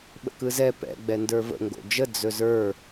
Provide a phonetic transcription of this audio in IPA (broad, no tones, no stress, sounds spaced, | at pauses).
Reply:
ɓ ə̰ k ɯ z ɛ p ɛ̰ ɡ͡b ɛ n d ə˞ v ə̰ ŋ ɡ o̰ d͡ʒ ə d͡z ɵ z ə˞